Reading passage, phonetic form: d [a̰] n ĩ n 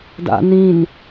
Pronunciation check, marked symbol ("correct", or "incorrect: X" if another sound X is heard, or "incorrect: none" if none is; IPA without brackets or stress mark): correct